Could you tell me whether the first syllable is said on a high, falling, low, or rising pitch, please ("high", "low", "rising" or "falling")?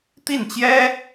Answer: falling